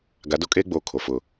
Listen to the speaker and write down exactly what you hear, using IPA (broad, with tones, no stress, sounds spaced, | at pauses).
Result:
ɡ a˨˦ d o˦ kʼ eː˦ ɡ͡b oː˨ kʰ o˨ f ʊ˦˨